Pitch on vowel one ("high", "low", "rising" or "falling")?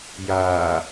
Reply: low